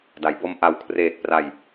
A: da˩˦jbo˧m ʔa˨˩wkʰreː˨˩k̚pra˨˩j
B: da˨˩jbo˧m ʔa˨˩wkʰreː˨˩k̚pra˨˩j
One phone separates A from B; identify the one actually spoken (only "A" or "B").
A